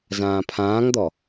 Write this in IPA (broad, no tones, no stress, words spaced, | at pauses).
zãːpʰãːŋd̪ɔ